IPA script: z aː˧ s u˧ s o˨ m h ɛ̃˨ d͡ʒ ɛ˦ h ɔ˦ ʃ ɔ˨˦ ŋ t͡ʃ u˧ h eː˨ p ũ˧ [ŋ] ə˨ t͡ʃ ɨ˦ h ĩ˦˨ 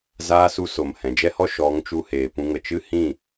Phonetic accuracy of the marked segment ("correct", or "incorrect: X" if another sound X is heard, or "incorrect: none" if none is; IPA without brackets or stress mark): correct